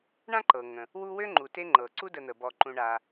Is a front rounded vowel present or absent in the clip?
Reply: present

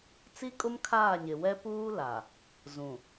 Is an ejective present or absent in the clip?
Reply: present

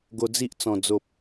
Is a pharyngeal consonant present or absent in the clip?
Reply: absent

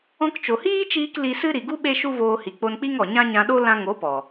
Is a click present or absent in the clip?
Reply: absent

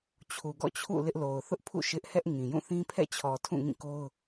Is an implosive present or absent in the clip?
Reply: absent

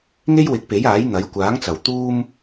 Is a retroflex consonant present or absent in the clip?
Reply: absent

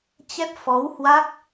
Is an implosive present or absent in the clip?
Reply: absent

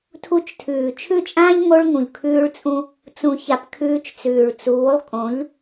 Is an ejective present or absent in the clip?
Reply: present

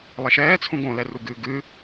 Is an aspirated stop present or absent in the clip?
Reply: present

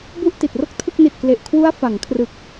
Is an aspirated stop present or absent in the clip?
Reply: present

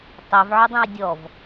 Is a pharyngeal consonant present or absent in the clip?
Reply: present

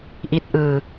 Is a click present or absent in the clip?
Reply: absent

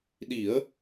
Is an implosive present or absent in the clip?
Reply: present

